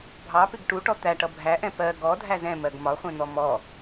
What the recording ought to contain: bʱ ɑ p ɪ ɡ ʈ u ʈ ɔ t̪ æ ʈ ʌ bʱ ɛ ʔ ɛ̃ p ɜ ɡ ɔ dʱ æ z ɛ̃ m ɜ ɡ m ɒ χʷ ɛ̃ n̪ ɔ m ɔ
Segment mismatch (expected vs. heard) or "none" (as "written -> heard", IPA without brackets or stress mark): ɛ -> æ